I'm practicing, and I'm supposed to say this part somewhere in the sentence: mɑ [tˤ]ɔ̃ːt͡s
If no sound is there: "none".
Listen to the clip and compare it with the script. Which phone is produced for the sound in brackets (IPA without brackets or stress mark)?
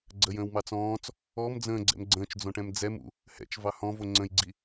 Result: t͡s